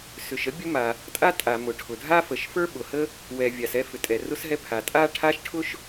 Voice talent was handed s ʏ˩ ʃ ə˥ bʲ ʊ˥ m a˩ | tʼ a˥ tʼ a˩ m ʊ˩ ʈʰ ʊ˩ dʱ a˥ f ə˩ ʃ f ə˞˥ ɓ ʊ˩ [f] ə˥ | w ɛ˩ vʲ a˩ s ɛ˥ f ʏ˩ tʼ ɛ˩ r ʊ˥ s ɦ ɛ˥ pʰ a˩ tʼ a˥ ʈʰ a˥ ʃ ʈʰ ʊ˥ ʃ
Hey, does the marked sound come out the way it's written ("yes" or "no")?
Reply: no